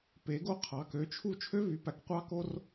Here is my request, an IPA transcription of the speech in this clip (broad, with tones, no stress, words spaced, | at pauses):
pe˨˥ɡo˥ qʰɑ˨˥ kø˨˥t͡ʃʰu˥ t͡ʃʰø˥vy˨˥pæ˨˥k qʷɑ˥ko˥r